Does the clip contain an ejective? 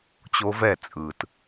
yes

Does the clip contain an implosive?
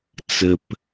no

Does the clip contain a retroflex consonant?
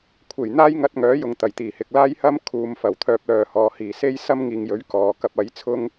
no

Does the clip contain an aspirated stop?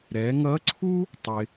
yes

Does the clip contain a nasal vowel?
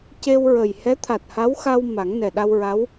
no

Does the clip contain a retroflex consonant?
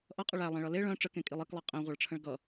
yes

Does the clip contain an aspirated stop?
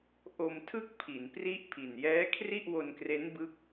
yes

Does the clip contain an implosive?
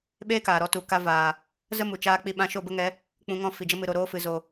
yes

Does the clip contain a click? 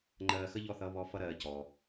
yes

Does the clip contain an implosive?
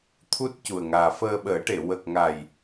yes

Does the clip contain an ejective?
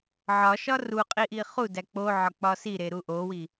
yes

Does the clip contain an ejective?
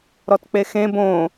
no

